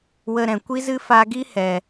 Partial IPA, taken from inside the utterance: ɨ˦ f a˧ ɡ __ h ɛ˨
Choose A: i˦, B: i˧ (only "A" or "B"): A